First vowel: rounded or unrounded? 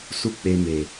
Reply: rounded